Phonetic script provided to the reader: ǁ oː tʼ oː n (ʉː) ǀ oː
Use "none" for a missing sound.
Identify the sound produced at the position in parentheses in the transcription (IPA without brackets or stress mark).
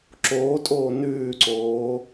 ʉː